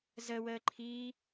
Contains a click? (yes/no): yes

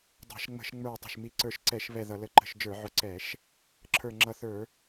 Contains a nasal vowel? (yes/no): no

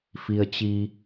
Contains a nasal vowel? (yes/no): no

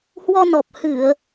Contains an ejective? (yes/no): no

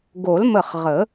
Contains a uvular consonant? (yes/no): yes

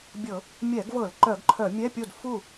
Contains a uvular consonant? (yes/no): no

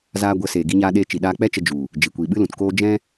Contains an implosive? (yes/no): yes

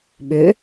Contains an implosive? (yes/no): yes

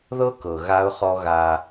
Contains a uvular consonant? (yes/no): yes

